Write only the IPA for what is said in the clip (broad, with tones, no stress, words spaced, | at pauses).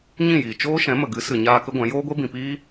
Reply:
ɲĩ˦˨jiː˨ t͡ʃoː˦ ʃɛ̃˨˦mə˨ɡɨ˨˦ sɨ˨ɲaː˧ kə˦ɡʷɛ̃˨˦ joː˦ɡʷe˦ bĩ˨piː˦